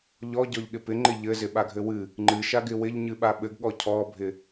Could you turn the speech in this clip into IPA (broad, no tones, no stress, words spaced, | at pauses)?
ʎɔɟɔʎɠɪ pɪŋ͡ǃɪ ʎɘzɪɓaɡʱɘ wɨ | ŋ͡ǃɨʃaɡɪ wɪʎɲɨɓa ɓɘɡɠɔ cʰɔbʱɪ